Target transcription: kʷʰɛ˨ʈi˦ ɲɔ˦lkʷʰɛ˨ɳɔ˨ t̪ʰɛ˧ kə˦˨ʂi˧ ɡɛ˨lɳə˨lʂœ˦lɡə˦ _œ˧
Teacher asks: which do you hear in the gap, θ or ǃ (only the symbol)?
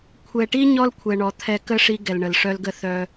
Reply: θ